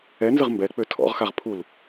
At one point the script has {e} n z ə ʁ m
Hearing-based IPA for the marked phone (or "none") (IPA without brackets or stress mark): ɛ